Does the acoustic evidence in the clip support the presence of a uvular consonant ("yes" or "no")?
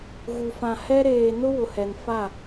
no